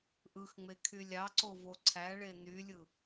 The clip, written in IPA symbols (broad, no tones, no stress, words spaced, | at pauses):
ʔɯxŋ͡me kʰylʲɑǀo voǀʰæɭe nylʲɯ